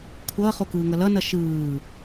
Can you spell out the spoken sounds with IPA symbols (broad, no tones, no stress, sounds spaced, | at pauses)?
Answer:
kʷʰ ʌː χ o k ɯː ŋ ʌ l ʌ n ʌ ʃ ɯː